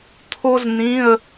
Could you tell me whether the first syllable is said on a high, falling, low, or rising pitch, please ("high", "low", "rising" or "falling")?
high